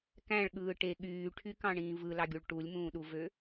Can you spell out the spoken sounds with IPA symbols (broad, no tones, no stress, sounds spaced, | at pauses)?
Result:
k æ̃ ɭ ɠ ɯː ʈ e ɠ yː ʈʰ y k ɑ̃ ɳ ĩː v ɯ l ɑ ɡʲ u ɭ ʈ u lʲ m ũː ɗ u v ø